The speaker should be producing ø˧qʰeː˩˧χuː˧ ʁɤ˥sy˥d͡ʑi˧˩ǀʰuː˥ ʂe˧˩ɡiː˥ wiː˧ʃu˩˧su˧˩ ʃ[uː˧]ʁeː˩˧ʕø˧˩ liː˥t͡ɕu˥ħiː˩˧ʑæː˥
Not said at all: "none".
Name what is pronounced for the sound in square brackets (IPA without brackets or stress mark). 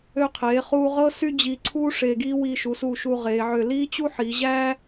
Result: uː˧